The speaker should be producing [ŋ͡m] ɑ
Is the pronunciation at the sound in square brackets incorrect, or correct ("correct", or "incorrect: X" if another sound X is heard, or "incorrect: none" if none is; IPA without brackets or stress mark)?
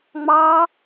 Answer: correct